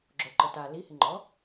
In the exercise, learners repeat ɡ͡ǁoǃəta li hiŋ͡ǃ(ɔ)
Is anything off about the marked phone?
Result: no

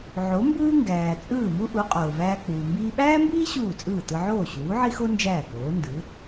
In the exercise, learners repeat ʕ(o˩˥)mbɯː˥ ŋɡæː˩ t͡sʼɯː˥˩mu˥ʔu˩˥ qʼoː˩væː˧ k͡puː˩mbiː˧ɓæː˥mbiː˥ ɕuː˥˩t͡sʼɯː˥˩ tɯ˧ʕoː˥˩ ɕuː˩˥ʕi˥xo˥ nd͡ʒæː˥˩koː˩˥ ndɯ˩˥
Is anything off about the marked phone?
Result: no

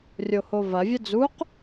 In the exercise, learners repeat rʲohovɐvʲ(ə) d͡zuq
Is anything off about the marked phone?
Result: no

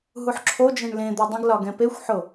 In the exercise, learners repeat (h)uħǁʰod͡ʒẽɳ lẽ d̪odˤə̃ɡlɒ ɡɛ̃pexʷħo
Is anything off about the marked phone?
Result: yes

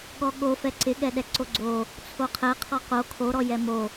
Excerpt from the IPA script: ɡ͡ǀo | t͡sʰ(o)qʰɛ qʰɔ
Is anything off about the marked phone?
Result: no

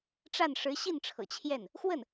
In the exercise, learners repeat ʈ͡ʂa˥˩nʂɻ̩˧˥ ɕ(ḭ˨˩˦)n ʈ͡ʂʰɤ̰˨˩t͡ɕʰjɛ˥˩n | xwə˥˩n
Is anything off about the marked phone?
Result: yes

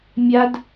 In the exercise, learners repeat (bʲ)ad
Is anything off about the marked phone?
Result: yes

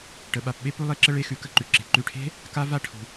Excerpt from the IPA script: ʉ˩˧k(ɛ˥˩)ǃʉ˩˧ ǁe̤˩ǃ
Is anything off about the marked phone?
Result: yes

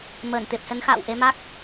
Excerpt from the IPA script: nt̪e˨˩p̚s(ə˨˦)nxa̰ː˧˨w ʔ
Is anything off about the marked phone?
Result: no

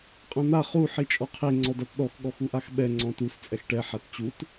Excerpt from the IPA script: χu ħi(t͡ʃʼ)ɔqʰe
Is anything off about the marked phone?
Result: no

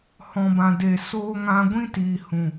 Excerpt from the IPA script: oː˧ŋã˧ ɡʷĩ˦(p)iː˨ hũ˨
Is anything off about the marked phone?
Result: yes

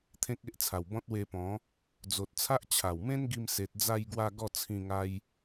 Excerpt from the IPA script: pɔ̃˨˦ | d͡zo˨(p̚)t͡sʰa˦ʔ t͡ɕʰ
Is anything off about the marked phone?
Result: yes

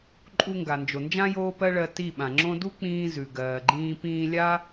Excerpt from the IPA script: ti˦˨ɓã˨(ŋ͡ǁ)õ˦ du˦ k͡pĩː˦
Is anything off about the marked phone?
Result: no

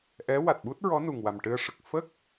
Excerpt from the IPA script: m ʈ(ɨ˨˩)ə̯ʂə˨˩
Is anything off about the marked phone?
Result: yes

